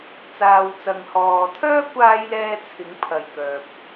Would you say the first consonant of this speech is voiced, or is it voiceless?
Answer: voiceless